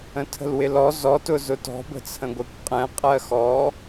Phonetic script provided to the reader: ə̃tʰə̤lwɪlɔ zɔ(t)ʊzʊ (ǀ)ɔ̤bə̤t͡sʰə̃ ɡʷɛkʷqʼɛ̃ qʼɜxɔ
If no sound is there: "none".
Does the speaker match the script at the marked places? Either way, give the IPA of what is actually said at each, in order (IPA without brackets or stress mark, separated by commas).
t, t